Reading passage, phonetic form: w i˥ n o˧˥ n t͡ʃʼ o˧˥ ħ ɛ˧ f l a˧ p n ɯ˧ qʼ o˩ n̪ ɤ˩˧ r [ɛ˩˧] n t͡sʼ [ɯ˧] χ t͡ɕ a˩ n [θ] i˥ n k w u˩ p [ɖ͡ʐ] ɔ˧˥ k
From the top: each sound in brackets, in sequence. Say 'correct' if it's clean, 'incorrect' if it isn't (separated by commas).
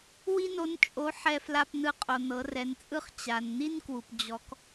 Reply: correct, incorrect, incorrect, incorrect